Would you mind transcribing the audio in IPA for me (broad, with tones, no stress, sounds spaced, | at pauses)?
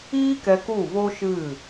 iː˦ k ɛ˧ k u˦˨ v o˦ ʃ ɨ˦˨